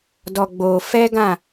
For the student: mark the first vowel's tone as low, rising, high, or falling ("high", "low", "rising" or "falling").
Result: low